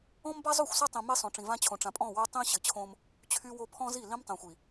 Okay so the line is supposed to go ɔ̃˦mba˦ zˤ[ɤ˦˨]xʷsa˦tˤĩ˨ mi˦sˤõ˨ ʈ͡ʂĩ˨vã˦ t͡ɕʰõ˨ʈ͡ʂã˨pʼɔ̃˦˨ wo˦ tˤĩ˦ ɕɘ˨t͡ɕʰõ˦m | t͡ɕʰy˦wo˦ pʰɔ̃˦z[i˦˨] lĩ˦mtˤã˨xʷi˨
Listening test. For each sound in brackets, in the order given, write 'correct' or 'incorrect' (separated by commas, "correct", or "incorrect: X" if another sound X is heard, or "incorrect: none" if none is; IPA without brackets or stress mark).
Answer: incorrect: o˦˨, correct